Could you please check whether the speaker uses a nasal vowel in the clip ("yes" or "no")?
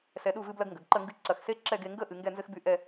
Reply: no